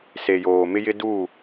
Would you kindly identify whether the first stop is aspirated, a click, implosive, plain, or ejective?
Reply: plain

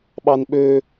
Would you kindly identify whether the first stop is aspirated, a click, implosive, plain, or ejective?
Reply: implosive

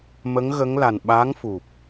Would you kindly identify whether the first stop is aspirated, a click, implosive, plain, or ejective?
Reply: implosive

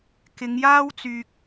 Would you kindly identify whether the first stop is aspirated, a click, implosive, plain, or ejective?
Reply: plain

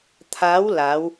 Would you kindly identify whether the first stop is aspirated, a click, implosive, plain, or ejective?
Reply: aspirated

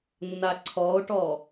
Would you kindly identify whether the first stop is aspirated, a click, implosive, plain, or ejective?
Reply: click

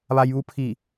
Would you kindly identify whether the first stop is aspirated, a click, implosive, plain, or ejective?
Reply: aspirated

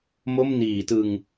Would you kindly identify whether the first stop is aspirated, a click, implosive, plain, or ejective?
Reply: plain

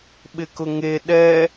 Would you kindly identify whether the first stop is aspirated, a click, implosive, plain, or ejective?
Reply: implosive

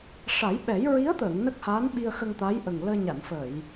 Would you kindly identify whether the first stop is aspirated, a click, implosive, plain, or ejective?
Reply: implosive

